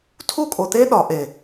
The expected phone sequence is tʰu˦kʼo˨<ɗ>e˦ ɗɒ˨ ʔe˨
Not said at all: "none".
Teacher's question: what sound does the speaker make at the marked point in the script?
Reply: t̪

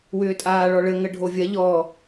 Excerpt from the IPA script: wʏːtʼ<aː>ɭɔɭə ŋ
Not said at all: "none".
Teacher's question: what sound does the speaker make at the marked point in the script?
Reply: aː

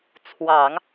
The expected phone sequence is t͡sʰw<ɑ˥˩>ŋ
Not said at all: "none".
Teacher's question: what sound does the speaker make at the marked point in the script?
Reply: ɑ˨˩˦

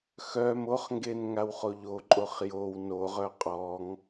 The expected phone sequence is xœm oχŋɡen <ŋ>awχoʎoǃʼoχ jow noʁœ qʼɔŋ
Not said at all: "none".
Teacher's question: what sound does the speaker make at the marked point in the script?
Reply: ŋ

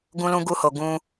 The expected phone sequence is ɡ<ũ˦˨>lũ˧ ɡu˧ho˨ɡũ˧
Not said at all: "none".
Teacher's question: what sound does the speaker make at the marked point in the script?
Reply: ũ˧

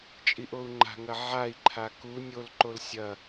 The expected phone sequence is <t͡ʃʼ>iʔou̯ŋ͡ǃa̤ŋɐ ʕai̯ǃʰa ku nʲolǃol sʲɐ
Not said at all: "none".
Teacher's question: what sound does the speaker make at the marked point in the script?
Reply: t͡ʃʼ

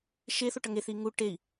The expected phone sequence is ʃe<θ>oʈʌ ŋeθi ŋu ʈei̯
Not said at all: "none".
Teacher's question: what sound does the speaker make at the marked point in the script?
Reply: θ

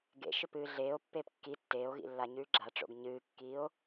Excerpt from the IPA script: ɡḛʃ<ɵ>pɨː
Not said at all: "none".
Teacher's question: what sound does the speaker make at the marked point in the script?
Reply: ɵ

